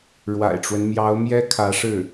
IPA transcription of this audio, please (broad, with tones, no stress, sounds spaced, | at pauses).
ɻ w a̰˨˩ ɪ̯ ʈ͡ʂ w ə˦ n m j ɑ˧˥ ʊ̯ m j ɛ˥ kʰ ä˧˥ ʂ ɻ̩˥˩